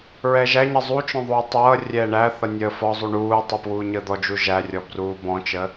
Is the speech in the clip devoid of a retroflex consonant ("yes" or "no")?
no